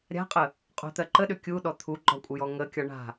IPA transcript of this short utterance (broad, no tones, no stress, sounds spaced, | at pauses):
ɾʲ a̤ qʼ ə | qʼ o̤ t̪ ɜ ǃ ə ɗ ʏ kʲ u ɗ ɔ t̪ʰ u ɡ͡ǃ ɒ kʷʼ ə j ɔ ŋ ə kʲ ɒ ɳ a̤